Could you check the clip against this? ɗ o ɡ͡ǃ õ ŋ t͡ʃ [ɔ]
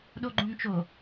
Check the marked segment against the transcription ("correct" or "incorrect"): incorrect